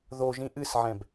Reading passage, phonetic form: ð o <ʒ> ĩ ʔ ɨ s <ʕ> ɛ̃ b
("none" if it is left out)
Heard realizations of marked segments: ʒ, ʕ

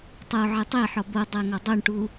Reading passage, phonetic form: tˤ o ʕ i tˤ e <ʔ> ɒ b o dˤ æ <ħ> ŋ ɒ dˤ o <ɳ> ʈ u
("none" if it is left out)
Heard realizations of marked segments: ħ, none, ɳ

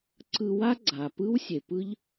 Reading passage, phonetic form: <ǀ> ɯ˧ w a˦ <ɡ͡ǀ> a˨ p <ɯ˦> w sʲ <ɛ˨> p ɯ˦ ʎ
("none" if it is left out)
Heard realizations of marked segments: ǀ, ɡ͡ǀ, ɯ˦, e˨

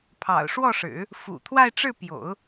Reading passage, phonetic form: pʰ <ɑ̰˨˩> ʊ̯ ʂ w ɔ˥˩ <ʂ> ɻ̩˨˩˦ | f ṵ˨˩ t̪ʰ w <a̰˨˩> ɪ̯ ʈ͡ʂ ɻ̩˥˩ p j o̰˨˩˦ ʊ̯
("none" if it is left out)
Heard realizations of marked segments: ɑ̰˨˩, ʂ, a˥˧

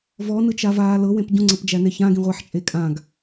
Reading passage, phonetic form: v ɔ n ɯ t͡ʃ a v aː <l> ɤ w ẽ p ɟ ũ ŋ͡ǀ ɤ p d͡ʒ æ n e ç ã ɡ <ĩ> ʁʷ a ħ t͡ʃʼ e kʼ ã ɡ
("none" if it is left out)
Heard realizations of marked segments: l, ĩ

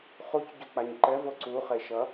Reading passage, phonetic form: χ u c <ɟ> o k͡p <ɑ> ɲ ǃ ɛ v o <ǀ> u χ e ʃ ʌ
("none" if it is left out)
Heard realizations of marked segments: ɟ, a, ǀ

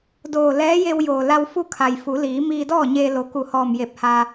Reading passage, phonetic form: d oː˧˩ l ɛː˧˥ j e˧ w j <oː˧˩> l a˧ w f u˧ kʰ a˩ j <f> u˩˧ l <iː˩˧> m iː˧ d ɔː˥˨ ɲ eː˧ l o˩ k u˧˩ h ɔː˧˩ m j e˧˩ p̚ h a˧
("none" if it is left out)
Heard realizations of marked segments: oː˩, f, iː˩˧

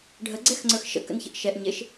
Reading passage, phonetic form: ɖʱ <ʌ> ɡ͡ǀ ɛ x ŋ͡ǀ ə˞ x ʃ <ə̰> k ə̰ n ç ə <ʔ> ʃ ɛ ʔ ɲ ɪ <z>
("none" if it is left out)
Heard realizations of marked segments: ə, ə̰, ʔ, ʃ

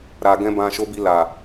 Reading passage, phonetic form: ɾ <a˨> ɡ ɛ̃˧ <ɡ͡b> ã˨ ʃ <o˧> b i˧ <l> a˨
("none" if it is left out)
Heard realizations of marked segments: a˨, b, o˨˦, l

